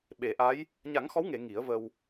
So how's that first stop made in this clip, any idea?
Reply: implosive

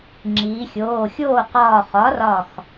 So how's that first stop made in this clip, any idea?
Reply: click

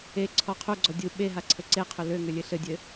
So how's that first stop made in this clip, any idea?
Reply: click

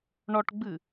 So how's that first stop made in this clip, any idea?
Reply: plain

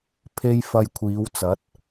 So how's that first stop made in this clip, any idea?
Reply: aspirated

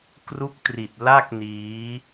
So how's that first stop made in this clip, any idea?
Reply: plain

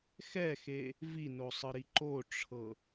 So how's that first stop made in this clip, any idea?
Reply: click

